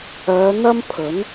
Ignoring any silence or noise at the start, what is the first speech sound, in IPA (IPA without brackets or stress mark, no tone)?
œː